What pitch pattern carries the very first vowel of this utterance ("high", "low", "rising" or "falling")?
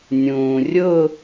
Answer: low